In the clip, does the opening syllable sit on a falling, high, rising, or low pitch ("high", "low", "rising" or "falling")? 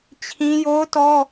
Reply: high